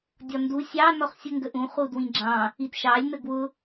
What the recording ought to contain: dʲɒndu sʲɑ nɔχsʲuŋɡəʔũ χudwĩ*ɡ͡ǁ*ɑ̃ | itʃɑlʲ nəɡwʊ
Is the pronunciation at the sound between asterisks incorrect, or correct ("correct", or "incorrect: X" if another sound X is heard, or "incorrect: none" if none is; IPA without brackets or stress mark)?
correct